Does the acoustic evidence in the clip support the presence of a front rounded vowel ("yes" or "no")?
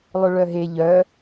yes